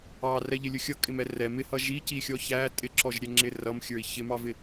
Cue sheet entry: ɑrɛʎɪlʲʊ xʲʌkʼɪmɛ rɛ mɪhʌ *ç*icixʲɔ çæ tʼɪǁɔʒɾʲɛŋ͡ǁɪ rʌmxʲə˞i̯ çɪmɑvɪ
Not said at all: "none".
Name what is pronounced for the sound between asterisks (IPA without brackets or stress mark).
ʒ